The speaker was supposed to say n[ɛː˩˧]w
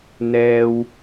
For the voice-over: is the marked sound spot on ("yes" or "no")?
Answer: no